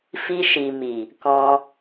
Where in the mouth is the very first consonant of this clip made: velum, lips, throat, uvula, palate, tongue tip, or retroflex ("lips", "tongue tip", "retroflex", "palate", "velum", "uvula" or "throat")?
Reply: lips